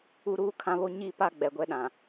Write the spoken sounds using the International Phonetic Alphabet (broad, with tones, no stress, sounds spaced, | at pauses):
u˦ ɾ uː˦ kʰ ã˦ β o˦ ɲ i˦˨ p a˦ ɡ͡b ɛ˨ ɡʷ ɛ˦ ɗ ã˨